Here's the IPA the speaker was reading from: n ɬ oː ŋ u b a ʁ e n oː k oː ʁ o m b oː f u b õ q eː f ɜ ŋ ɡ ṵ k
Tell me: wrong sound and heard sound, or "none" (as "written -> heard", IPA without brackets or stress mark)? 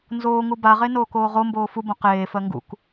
ɬ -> z